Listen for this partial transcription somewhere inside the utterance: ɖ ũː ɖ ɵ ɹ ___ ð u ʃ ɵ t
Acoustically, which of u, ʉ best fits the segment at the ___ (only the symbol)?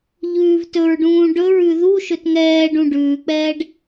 ʉ